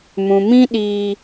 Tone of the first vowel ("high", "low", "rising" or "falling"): low